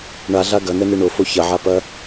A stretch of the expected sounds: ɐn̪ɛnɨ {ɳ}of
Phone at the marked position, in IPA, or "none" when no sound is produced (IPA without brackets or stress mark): ɳ